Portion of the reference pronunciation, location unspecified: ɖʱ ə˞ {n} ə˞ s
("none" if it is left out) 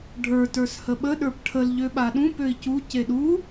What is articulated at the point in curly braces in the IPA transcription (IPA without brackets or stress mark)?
t